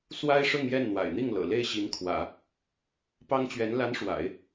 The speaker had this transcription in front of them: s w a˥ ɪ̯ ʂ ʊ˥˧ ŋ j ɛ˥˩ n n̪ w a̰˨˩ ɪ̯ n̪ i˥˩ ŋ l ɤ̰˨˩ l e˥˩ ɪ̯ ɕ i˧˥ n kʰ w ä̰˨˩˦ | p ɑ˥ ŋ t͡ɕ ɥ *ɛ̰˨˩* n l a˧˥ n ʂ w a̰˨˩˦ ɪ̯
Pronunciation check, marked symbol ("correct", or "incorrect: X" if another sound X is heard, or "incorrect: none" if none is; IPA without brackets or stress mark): incorrect: ɛ˧˥